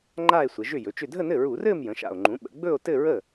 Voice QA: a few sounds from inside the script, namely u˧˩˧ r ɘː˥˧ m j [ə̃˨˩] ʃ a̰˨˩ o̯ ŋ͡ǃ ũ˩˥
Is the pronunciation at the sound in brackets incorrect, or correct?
incorrect